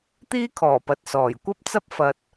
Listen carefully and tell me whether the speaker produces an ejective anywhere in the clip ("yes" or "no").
no